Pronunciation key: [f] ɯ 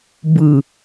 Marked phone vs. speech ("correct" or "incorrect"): incorrect